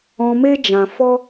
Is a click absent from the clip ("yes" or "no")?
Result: yes